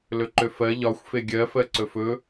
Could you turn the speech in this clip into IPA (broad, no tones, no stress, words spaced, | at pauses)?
lɵǃøfɜ ʎɒxʷ feɡʲɜ fɜǀɵfɵ